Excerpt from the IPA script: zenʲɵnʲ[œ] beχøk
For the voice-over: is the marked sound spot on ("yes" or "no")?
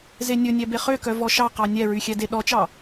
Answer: no